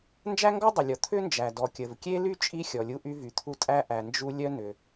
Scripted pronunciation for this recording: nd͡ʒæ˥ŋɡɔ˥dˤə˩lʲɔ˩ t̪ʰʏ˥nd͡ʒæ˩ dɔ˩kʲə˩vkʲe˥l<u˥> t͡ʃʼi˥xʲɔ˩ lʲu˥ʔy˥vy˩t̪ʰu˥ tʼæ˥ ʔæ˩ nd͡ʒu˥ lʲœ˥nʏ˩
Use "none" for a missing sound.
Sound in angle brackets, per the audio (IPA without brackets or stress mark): y˥